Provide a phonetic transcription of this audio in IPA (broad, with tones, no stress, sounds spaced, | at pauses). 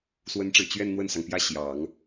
s w ə˧˥ n ʈ͡ʂ ɻ̩˨˩ t͡ɕ ɥ ɛ˥˧ n n̪ w ə˥˩ n s ɑ˩ ŋ p j ä˥˩ ɕ j ɑ˨˩˦ ŋ